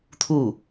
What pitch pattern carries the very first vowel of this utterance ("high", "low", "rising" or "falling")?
falling